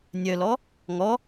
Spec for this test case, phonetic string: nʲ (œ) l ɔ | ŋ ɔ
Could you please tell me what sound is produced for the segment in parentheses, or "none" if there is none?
œ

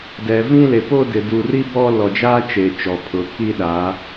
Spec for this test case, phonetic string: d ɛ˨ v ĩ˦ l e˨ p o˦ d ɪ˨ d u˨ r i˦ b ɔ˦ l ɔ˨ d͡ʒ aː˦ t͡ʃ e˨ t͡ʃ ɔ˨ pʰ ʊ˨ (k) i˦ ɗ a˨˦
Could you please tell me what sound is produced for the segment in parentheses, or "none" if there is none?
k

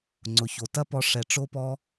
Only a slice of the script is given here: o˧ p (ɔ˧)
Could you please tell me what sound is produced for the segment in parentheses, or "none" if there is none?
ɔ˧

